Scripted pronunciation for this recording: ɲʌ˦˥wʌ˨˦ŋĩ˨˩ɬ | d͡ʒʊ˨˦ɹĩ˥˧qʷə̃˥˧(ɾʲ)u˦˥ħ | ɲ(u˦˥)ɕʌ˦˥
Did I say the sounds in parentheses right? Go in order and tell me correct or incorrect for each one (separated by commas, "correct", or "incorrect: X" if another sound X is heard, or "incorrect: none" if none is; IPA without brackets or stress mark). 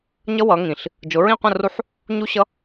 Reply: incorrect: r, correct